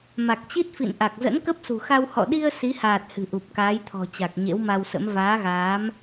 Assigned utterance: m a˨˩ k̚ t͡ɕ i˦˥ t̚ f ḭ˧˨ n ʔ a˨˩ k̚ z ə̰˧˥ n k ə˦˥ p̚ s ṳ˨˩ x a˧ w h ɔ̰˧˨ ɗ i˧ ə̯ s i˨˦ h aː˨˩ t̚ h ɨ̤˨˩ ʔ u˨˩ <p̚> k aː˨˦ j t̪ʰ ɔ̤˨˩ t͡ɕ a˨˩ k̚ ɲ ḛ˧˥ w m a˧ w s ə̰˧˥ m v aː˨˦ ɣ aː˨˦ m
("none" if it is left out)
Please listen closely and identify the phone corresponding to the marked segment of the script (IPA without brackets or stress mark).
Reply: p̚